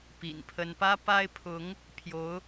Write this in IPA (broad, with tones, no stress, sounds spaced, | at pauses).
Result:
p ḭ˨˩ n pʰ ə˥ n p ä˥ p a˥ ɪ̯ pʰ ʊ˧˥ ŋ | pʰ j o˧˥ ʊ̯